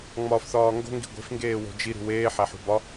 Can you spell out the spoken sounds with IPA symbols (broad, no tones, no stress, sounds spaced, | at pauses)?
ŋ͡m ɒː f θ ɒː ŋ ɡ o̤ ŋ ɡ i̤ ɡʷ e̤ f ŋ ɡ eː w o̤ d͡ʒ i ɾ ṳ w eː ħ æ ħ ṳ b ɒ